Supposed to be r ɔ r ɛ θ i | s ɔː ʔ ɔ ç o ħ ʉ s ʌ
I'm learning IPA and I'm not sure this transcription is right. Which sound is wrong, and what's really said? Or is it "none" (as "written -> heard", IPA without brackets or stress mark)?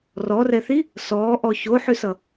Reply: none